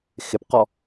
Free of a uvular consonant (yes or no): no